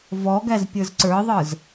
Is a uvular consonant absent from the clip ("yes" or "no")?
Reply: yes